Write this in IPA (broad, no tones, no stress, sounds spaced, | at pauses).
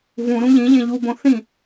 v ũ ɾ ũ ʎ ĩ ʎ ẽ ʎ u b õ θ ĩ